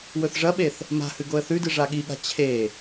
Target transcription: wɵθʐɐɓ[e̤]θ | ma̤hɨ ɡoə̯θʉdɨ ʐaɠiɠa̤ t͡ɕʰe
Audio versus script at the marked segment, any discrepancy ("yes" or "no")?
yes